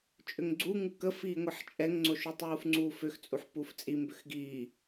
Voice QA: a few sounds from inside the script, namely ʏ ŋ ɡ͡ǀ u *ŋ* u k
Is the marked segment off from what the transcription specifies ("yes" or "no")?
no